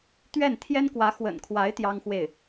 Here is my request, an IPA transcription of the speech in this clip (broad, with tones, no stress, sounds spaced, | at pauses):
t̪ ɥ ɛ˥˩ n t̪ʰ j ɛ˥ n k w ä˧˥ x w ə̰˨˩ n kʰ w a˧˥ ɪ̯ t̪ j ɑ˥ ŋ x w e˥˩ ɪ̯